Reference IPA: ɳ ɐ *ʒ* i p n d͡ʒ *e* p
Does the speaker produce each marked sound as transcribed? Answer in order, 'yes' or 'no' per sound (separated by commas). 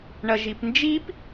yes, no